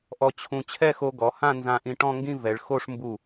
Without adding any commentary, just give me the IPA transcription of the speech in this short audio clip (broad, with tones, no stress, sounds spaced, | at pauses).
ʔ ɔ˧ t͡ɕʰ ũ˧ t͡ɕʰ ɛ˥˧ x o˧ ɡ ɔ˩˧ h ã˥˧ n z ã˧ ʔ ĩ˧ ʈ ɔ̃˥˧ ŋ ɡ ĩ˥˧ v ɛ˩˧ ɭ x o˥˧ ʂ m b u˧˩